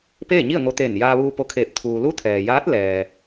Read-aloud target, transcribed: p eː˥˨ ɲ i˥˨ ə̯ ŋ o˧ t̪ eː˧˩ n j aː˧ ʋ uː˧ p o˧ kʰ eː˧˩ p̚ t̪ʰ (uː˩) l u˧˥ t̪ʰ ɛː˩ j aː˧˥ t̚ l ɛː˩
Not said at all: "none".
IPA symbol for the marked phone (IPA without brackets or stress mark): uː˩